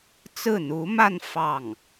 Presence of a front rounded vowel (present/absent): absent